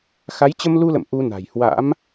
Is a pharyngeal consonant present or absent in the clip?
absent